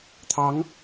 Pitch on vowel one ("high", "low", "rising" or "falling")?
rising